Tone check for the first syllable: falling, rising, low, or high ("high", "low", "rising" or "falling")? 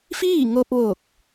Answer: falling